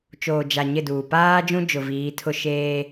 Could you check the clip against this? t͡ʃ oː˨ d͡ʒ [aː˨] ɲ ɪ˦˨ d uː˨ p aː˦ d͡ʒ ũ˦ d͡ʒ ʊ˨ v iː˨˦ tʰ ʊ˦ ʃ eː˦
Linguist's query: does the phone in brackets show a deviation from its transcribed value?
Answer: yes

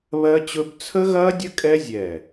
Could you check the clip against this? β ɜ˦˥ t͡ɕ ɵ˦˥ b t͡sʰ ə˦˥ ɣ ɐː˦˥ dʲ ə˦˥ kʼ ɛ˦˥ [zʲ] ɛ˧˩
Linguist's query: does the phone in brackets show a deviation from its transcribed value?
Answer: no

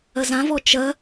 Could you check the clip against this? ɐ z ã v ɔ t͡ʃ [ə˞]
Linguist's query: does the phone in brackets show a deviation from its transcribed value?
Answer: yes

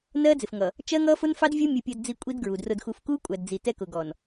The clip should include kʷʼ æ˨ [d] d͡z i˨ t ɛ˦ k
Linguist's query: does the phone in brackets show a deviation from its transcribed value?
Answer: no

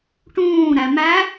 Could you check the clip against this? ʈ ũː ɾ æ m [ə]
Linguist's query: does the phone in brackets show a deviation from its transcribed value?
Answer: yes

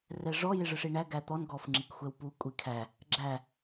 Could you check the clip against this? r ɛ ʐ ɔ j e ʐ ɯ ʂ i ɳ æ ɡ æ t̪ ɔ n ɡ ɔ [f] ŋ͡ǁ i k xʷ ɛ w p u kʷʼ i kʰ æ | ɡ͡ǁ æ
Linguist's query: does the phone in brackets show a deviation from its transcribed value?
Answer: no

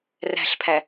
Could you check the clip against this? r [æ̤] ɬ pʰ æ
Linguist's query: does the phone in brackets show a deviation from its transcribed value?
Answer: no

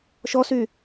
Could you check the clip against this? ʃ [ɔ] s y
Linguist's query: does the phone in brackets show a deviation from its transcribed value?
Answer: no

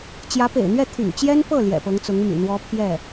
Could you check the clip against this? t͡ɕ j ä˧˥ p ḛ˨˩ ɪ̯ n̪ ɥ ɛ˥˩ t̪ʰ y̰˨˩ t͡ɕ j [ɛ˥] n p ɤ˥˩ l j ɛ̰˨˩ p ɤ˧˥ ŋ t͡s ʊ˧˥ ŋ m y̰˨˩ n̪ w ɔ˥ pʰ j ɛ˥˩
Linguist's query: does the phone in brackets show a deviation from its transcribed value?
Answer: no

